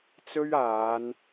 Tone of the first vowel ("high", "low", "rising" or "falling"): high